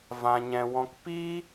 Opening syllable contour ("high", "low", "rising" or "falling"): low